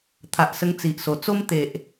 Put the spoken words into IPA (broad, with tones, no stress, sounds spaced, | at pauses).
t̪ʰ a˨ ʔ s ə˧ ŋ t͡s i˨ ʔ s o˨˩ t͡s o˦ m t̪ e˨ ʔ